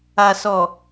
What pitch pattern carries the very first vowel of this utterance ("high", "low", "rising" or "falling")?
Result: low